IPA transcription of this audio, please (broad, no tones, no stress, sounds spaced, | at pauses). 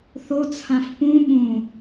θ o t͡sʰ ã f p ũ ɓ ũ